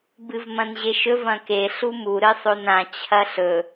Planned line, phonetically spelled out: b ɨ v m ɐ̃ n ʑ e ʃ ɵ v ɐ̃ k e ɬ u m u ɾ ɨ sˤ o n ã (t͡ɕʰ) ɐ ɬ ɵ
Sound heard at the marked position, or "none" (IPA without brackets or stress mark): t͡ɕʰ